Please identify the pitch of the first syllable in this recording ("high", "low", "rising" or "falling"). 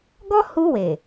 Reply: high